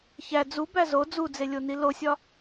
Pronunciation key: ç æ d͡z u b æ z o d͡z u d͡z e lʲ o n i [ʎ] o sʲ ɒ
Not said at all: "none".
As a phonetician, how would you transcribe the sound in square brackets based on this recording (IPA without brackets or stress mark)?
l